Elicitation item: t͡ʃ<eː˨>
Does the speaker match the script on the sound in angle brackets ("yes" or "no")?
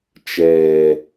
no